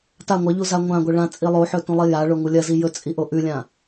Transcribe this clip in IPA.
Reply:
ta ŋʷɐʎu zaŋʷãɡʷɐ ɭã t͡sʼilˠoħɵ tũlˠijaɭo ŋulʲɐzi jɵt͡sʼi ʔoʔʉlʲã

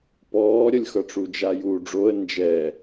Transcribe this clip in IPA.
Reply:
pɔːɾʲʌlʲxʌʈ͡ʂu d͡ʒajuːɖ͡ʐoə̯ nd͡ʒɛ

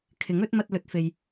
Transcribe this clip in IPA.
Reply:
kʰɪ˨˥ŋɵ˨˥t̚mɐ˧t̚ lɵ˧t̚fe˧j

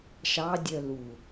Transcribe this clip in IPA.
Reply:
ʃɑdʲœ lu

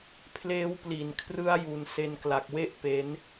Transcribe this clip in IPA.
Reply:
pʰleː˦˥wpli˨˩n kʰrɯ˦˥a̯ju˩˦n se˧nkla˨˩k̚we˥˩ʔ pe˦˥n

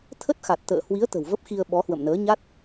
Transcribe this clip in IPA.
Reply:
t̪ʰə˦˥t̚xa˨˩t̚ t̪ə̰ː˧˨hwi˨˦ə̯ t̪ə̤˨˩wvə˦˥p̚xi˧ə̯ ɓɔ˨˦hwə̰˧˨mnəː˨˦ɲa˦˥t̚

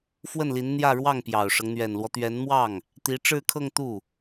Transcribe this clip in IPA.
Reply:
fwə˥˩nli˧˥nn̪jä˥˧ ɻwɑ˥˩ŋpjɑ˨˩ʊ̯ʂɤ˦ŋ n̪ɥɛ˨˩nlwɔ˦t̪ɥɛ˧˥nmwɑ˥˩ŋ | t̪i˧˥ʈ͡ʂɻ̩˥˧kʰɤ˥˧ŋ t̪u˥˩

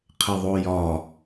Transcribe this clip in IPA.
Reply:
qʰɘðˤojɒ

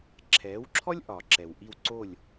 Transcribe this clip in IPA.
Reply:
ǁʰɛː˩˥wǁʰɔ˥lʲ ʔɒ˩ǁɛ˩wʔi˥˩w ǀo˥˩lʲ

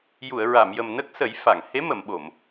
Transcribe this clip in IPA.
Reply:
ju˨˩˨ə̯ɹa˨˩˨mjə˨˩m nə˦˥k̚sə˨˩˦j fa˨˩˨ŋ he˧˥mə˨˩˨mɓo˨˩˨m

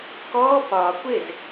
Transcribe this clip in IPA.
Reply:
kɔː pɒː kʷez

